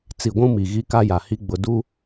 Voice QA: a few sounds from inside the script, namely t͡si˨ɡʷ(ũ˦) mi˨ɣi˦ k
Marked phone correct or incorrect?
correct